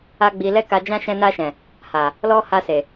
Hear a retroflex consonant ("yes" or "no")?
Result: no